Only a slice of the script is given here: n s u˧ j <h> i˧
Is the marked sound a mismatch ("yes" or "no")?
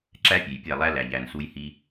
no